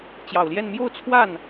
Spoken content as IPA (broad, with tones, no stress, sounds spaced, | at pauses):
t͡ɕ j ɑ˨˩ ʊ̯ l j ɛ˥˧ n m j o˥˧ ʊ̯ t͡sʰ w a˥˩ n